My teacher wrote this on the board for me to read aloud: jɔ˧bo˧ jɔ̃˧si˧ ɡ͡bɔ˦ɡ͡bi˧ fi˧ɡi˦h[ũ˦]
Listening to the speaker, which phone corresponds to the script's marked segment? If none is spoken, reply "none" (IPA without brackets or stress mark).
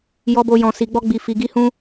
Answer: ũ˦